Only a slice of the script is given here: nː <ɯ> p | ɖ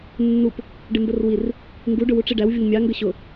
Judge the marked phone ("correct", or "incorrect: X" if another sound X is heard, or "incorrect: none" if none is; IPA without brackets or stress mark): incorrect: u